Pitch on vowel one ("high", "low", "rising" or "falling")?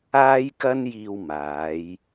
high